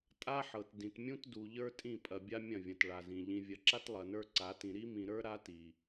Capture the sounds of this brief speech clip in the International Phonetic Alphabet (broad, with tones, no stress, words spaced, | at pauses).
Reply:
tʼa˦ħɤ˨t dĩ˨tmʲũ˦tdu˨ ʎə˞˦tʼĩ˦˨pʼɐ˨ bʲa˦ mʲɐ̃˦˨vʲɐ̃˨t ɭa˨zĩ˨ ʎĩ˨vʲɐ˨ǁa˦t lˠɐ˨nə˞˦ǀa˨˦tĩ˨ ɾi˦mĩ˨ɾə˞˦ ɾa˦ti˨